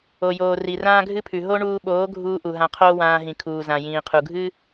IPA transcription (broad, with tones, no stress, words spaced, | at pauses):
o˨joː˨ ri˨rãː˦ɡʱɨ˦pʰʉ˨ ɦo˦ɳuː˧ɓoː˨˦ɡʱuː˧ ʔu˨ ɦã˧qʰoː˦wãː˧ɦĩ˨ kʰuː˨zã˨ jĩː˨qʰu˨ɡʱɨ˦